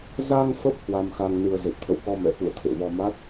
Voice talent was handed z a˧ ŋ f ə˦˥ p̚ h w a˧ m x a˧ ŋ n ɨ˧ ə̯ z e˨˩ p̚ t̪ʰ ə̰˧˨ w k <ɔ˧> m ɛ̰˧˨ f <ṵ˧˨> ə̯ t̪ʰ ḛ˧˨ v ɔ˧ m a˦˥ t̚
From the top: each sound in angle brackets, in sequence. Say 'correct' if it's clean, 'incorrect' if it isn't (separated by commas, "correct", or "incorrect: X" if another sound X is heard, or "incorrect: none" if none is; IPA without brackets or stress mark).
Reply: correct, correct